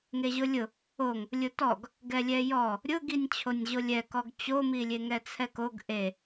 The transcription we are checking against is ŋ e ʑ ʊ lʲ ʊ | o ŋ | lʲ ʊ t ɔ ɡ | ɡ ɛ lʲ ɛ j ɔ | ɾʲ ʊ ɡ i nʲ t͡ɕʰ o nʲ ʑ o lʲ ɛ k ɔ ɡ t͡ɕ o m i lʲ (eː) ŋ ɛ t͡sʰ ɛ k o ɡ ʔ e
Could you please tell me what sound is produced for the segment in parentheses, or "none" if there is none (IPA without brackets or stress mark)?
e